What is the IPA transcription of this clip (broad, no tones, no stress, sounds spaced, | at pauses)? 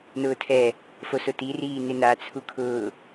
n ʊː tʰ ɛ | f o s ʊ t i r iː n ɪ n a t͡sʰ u kʰ ʊː